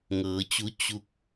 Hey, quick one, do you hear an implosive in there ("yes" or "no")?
no